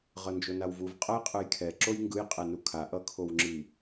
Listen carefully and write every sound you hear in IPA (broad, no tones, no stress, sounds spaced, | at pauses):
ʁ ʌ n d͡ʒ o n a w v u v qʼ ʌ j qʼ ɯ j kʰ ɛ ǁ o j ŋ ɡ ɯ j qʼ ɛ n u kʰ a ʔ ʌ kʰ o w ŋ͡ǁ i